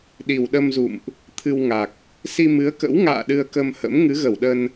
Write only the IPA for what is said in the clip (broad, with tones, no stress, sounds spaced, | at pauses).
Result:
ɗ i˨˩ w ɗ ə˧ m z ṵ˧˨ m ʔ | t̪ʰ ɨ˧ w ŋ a˨˩ k̚ | s i˧ m ɨ˨˦ ə̯ k ə̰˧˥ w ŋ a̰ː˧˨ ɗ ɨ˧ ə̯ k ə˧ m h ə̰˧˥ m ŋ ɨ˨˦ ɣ ə˧˩ w ɗ ə˧ n